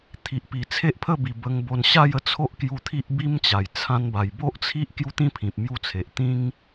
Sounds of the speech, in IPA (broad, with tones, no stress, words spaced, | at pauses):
t̪ʰi˨ʔpi˨˩t͡sʰe˦ʔpʰə˥˧ bi˨˩bə˧ŋbo˧n ɕa˥˧jə˧t͡sʰo˦ʔ kju˧t̪ʰi˦ʔbi˦mt͡ɕa˨˩j t͡sʰã˧nba˨˩jbo˦ʔt͡sʰi˦ʔ kju˦t̪ĩ˦pʰĩ˨p̚ mju˦t͡sʰe˨ʔ t̪ĩ˦ŋ